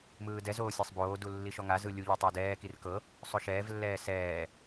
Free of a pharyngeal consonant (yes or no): yes